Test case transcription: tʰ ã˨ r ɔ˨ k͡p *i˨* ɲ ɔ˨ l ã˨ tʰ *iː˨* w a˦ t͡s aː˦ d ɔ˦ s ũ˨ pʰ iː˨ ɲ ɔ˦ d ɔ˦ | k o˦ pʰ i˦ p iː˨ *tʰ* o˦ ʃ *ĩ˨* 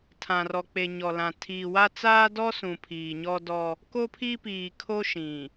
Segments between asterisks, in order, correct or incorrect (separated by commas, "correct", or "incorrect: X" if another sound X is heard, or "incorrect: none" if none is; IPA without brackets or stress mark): incorrect: e˨, correct, incorrect: kʰ, correct